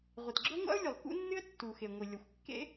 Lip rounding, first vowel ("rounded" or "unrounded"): unrounded